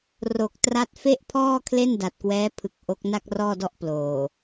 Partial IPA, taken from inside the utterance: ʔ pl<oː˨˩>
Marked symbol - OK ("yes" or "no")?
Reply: yes